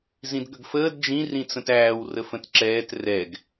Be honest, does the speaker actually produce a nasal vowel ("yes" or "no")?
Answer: yes